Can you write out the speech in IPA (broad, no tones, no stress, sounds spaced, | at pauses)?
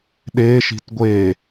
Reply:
ɗ e ʃ i̤ t ɡʷ e